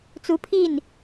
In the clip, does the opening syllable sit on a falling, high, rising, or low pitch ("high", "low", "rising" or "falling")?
rising